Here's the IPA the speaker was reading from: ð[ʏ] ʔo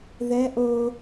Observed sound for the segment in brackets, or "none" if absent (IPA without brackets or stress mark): ɛ